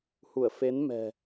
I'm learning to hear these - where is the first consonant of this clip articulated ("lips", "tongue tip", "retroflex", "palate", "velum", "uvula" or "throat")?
throat